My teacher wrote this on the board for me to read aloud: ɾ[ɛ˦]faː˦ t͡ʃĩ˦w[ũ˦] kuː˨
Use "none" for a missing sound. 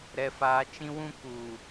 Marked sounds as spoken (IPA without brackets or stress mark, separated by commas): ɛ˦, ũ˦